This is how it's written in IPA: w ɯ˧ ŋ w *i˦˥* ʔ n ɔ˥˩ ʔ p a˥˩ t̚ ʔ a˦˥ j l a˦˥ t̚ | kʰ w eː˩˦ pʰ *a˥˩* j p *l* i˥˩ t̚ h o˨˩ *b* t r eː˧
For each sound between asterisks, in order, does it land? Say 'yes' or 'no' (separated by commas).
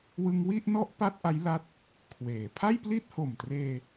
no, yes, yes, no